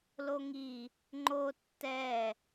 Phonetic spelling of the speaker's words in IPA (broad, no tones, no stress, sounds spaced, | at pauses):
l o ŋ i | ŋ͡ǃ o tː ɛ